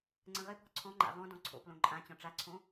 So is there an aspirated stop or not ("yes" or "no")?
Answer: yes